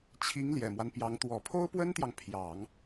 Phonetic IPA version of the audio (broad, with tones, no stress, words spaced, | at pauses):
t͡ɕʰi˧˥ŋ ljɛ˨˩mwa˦npjɑ˧˥ŋ t̪wɔ˨˩pʰo˥ʊ̯pwə˥nt̪jɑ˨ŋ pʰjɑ˨˩˦ŋ